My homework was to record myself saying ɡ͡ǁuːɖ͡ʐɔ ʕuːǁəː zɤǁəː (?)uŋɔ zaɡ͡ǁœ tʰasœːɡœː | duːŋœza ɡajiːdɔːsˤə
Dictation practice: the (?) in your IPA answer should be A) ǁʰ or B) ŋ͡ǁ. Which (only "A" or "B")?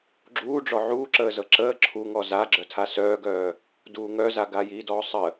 A